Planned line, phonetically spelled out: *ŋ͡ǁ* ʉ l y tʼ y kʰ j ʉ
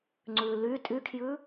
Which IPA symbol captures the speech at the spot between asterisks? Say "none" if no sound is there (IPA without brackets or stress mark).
ŋ͡ǀ